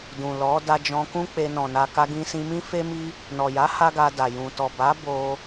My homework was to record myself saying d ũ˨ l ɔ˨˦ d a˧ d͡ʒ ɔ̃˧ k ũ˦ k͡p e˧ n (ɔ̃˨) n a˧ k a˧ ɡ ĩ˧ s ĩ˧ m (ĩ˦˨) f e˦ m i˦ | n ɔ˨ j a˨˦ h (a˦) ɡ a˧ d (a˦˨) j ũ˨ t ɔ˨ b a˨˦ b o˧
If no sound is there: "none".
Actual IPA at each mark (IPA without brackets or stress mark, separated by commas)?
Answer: ɔ̃˨, ĩ˦, a˦, a˨